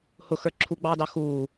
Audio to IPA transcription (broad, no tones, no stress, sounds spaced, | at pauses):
h ʊ x ə˞ ǁʰ u ɡ͡b ɑː d ɑ x uː